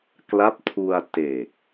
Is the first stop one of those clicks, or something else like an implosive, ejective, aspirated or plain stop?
plain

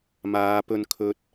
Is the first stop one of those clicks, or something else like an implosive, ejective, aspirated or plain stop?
plain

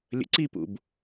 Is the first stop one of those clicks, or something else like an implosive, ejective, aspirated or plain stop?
click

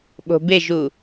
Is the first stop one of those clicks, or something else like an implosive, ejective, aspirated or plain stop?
implosive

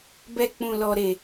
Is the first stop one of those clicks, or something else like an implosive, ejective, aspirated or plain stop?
plain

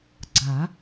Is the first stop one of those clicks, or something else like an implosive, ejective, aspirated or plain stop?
click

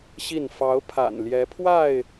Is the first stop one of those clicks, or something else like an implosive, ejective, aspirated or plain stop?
aspirated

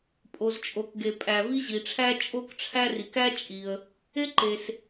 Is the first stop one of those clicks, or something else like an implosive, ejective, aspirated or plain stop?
ejective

